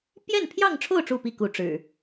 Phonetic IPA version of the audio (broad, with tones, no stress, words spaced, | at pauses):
pjɛ˥˨npʰjɑ˥˨ŋʈ͡ʂʰo˥˨ʊ̯ ʈ͡ʂu˥˨pi˥˨ku˨˦ ʈ͡ʂɻ̩˨˩